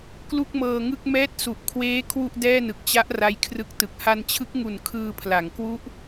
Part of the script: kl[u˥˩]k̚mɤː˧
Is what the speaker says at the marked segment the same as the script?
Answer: yes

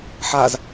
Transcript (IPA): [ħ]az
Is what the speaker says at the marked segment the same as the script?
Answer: yes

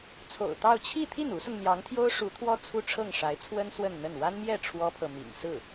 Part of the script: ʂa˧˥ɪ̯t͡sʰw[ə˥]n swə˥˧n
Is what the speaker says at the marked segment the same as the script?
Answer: yes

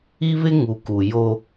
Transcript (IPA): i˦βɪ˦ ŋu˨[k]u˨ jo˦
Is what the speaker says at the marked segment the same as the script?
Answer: yes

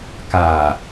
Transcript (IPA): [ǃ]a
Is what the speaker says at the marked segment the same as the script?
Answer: no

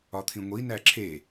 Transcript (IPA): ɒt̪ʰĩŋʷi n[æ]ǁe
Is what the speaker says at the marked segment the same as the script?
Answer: yes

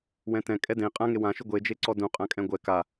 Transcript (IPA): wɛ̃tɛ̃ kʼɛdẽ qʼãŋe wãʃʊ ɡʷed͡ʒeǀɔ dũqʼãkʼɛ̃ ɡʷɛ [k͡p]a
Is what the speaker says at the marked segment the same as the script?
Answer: no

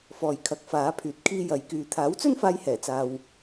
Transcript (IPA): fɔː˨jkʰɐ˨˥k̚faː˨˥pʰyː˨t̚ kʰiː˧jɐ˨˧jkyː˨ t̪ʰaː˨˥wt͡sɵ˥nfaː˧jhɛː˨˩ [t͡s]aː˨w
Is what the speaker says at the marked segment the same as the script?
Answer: yes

